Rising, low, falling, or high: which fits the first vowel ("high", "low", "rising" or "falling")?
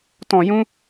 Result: low